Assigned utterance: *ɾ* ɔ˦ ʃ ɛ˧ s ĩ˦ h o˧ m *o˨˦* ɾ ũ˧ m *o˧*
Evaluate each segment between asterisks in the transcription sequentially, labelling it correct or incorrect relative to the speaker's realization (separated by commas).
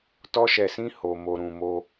incorrect, incorrect, correct